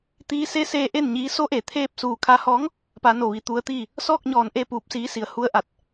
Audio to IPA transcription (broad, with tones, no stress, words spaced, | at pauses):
t̪iː˧se˧˥ seː˧ ʔe˥˨nɲiː˧˥ so˧˥ʔe˩ t̪ʰeː˥˨p̚ suː˧˩kʰa˧hɔː˧˥ŋ | pa˧no˧˩ʋi˩˧ t̪u˧˥ə̯t̪iː˥˨ | sɔː˥˨k̚ɲɔː˧˩nʔe˥˨ puː˧p̚siː˧˥si˩˧ə̯ hu˧ə̯ʔa˧˩t̚